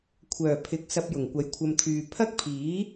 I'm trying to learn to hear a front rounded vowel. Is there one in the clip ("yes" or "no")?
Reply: yes